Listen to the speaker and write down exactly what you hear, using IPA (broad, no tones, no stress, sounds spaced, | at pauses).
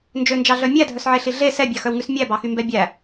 n d͡ʒ ø n d͡ʒ ɑ ɮ œ mʲ æ dʱ œ s ʕ e ɬ i ɮ e s ɛ bʲ ɑ x œ w ŋ ʉ s mʲ æ b ɑ x y m b ɛ bʲ æ